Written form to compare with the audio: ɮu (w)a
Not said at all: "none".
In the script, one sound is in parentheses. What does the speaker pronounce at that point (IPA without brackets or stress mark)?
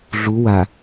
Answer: w